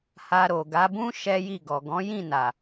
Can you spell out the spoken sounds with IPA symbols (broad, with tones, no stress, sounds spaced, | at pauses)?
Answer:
h a˧ ɾ o˨ ɡ a˨˦ b ũ˦ ʃ ɛ˦ j i˦˨ ɡ ɔ˨ ɡ ɔ̃˨˦ j ĩ˦˨ n a˨